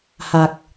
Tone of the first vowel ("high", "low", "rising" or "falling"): low